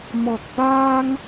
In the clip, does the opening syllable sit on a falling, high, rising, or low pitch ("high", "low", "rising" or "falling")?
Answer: low